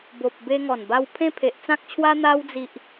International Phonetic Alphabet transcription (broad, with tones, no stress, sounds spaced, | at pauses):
b o˨ p̚ b e˧ ŋ ɔ˨˩ n b a˧ w pʰ ẽ˦ pʰ e˨ ʔ t͡s ã˦ k̚ t͡ɕʰ w a˦ n̪ a˧ w d͡z i˨ ʔ